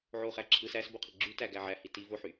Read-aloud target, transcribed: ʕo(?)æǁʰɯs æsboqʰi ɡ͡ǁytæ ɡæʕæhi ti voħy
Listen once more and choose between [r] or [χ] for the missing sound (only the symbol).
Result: χ